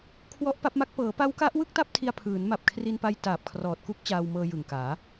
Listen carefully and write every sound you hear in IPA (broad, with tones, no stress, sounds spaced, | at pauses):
kʰ w ɔ˦˥ ʔ p a˦˥ p̚ m a˦˥ k̚ p ɤː˩˦ p a˦˥ w k a˦˥ ʔ w ɯ˥˩ k̚ t a˥˩ p̚ tʰ i˧ a̯ pʰ ɯː˩˦ n m a˨˩ p̚ kʰ r i˧ n p a˦˥ j t aː˨˩ p̚ kʰ r ɔː˨˩ t̚ k u˦˥ k̚ t͡ɕ aː˧ w m ɤː˧ j ɯ˨˩ ŋ k aː˩˦